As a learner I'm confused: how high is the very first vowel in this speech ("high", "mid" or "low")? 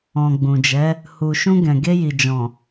mid